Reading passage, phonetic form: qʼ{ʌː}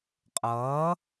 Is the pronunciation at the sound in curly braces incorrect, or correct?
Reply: correct